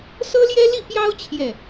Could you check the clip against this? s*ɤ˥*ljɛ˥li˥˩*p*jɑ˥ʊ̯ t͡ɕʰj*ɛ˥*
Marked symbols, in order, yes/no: yes, yes, no

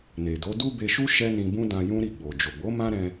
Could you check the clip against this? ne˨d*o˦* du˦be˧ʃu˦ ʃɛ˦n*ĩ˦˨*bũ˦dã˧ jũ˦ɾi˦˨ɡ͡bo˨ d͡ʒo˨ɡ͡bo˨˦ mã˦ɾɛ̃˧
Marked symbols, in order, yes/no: no, no

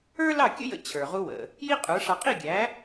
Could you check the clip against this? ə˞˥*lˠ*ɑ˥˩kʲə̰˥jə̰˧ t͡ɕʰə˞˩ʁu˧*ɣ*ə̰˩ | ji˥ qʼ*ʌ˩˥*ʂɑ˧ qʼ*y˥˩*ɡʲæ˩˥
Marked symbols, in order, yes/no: no, no, no, no

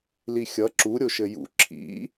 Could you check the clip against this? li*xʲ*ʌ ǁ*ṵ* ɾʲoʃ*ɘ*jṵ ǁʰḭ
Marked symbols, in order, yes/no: yes, no, yes

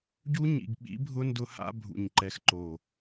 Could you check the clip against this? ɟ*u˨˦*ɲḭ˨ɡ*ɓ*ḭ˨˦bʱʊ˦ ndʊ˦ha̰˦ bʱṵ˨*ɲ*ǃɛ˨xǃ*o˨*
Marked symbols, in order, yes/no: no, yes, yes, yes

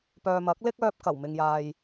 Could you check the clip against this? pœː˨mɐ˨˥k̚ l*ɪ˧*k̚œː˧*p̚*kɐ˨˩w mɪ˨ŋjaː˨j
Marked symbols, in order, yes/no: no, yes

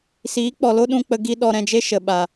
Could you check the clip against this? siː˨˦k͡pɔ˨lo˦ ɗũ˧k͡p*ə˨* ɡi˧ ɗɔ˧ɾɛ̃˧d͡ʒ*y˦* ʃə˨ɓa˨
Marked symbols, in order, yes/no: no, no

